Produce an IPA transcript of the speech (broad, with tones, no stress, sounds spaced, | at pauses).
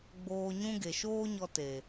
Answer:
ɡ͡b oː˧ ɲ ũ˦ ɡ e˨ ʃ oː˦ ɲ ɔ˧ t e˨